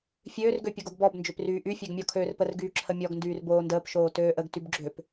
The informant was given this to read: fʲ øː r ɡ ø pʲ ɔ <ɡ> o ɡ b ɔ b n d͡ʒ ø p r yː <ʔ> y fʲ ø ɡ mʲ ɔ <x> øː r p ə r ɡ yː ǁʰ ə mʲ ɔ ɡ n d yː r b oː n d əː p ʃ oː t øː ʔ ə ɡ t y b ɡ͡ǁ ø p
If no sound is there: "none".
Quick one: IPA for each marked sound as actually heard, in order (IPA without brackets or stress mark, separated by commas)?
ɡ, ʔ, kʰ